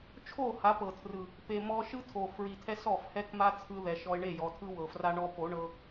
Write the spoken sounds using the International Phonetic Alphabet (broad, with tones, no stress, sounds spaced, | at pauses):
t͡ʃʰ o˦˨ h a˨˦ p ɤ˨ tʰ r ɯ˨ | p e˨ m ɔ˧ ʃ ɯ˦ tʰ o˨ f ɹ i˨ tʰ ɛ˧ s ɔ˦˨ f h ɛ˦ k m a˦ t͡sʰ ɯ˧ ð ɛ˨ ʃ ɔ˧ ɪ̯ ɳ e˦˨ j ɔ˨ tʰ ɯ˦ w ɤ˨ f r a˦ ɳ ɔ˧ p o˨˦ ɳ ɤ˧